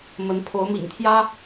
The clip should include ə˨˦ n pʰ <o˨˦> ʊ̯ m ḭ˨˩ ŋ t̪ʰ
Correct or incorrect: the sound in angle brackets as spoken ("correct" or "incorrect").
correct